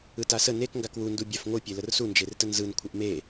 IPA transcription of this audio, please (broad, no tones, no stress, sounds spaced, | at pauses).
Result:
ɯ t a s ə n e k ŋ ɡ a k w u n d u bʲ a f ŋʷ ɯ pʲ e l ə r s u n d͡ʒ e r t ə n z ɯ n kʷʰ ə ʔ m e